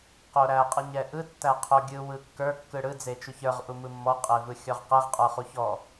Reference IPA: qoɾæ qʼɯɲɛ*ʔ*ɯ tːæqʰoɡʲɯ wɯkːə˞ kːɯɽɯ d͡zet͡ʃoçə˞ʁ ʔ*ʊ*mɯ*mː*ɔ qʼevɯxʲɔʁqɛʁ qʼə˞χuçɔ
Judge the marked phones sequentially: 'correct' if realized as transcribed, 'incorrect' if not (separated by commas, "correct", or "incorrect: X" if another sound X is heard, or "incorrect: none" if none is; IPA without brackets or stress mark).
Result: correct, incorrect: u, correct